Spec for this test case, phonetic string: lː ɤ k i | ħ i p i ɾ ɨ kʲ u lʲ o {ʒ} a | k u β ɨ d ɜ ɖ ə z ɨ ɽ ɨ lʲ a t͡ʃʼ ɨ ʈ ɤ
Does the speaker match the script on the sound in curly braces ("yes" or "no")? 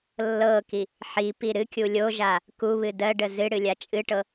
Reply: yes